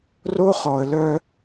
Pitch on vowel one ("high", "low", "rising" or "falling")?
high